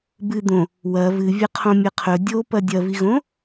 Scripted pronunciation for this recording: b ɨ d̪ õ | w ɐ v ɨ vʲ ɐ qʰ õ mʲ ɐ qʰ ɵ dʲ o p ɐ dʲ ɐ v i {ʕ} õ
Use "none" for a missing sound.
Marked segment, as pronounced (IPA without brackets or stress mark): ɣ